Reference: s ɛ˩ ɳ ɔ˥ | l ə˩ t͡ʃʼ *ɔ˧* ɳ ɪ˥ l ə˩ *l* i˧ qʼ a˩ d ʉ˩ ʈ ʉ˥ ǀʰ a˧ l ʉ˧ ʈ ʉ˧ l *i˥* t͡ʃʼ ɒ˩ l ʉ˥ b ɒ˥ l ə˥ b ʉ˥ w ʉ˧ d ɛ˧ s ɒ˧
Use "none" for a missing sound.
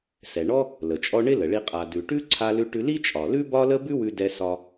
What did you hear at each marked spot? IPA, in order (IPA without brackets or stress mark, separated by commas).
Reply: ɔ˧, ɭ, i˥